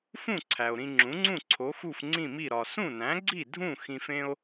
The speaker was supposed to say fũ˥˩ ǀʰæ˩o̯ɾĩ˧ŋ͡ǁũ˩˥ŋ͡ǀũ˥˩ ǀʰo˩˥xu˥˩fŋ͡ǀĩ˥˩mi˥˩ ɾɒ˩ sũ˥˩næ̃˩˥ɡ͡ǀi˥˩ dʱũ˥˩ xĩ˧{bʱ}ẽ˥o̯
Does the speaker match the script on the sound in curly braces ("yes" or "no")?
no